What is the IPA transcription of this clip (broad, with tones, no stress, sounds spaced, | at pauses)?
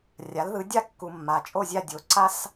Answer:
rʲ a˩˥ l ð ɯ˩˥ dʲ a˥˨ kː u˨ mː a˨ t͡ʃʼ o˥˨ zʲ a˥˨ dʲ o˩˥ ǀ a˥ s